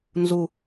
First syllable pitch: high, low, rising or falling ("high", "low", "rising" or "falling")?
falling